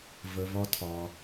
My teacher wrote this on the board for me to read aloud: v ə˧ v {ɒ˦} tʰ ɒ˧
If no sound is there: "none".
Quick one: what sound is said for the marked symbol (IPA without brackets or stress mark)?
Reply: ɒ˦